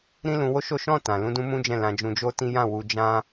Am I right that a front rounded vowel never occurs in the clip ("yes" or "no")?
yes